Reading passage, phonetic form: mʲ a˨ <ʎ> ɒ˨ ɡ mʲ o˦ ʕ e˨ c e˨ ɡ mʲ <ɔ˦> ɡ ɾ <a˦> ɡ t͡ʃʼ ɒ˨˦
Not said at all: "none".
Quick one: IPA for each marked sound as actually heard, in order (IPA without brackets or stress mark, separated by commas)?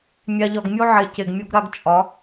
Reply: ʎ, o˦, a˦